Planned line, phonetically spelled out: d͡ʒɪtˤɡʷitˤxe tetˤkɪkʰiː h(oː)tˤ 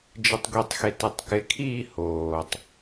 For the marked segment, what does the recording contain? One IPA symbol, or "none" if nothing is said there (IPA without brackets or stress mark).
oː